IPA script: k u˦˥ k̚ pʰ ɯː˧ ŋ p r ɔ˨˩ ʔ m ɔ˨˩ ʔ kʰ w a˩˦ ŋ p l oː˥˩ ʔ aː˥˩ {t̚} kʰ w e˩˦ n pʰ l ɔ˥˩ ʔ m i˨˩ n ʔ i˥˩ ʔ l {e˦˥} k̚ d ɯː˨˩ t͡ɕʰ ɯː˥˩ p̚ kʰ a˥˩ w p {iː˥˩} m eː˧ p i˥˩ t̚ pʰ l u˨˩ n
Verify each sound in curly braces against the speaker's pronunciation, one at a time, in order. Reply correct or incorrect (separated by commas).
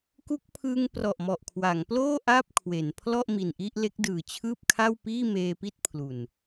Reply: incorrect, correct, correct